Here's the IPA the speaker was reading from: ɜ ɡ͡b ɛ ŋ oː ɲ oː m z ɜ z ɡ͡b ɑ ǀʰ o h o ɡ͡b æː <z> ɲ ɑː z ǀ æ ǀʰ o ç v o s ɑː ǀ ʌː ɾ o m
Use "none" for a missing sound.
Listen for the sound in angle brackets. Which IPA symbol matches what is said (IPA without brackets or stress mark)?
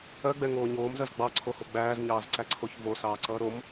z